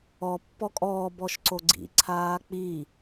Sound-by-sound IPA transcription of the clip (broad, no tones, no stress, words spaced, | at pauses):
ɔ pːɔkʼɔː bɔʃǀoɡ͡ǀḭ ǀʰaːk͡pi